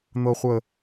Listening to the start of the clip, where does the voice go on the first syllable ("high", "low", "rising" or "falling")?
high